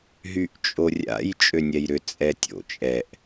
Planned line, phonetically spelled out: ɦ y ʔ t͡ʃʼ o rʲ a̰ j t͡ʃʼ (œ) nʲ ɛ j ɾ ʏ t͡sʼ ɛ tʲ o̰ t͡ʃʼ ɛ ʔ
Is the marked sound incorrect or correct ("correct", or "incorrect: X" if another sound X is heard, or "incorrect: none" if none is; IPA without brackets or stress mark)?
incorrect: ø